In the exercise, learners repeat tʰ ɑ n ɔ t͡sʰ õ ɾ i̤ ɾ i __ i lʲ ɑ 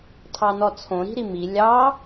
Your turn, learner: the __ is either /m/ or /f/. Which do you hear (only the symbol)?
m